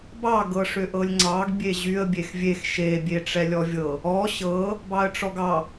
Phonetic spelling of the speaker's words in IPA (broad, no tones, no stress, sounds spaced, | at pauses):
b ɑ ɡ ɤ ʂ ʏ ʔ ɤ lʲ ŋ͡ǀ ɑ ɡ bʲ e ʑ y ə̯ bʲ e x vʲ e x ʃ e bʲ e ʈ͡ʂ ɛ lʲ ɔ vʲ ɤ | ɔ ɕ ɤ | b ɑ ə̯ ʈ͡ʂ ɔ ɡ ɑ